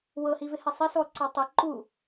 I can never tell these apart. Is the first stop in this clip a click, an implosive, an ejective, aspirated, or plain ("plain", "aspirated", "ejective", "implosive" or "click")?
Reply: click